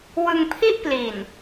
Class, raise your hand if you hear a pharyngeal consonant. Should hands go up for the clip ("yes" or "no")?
no